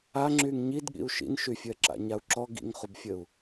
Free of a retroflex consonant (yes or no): yes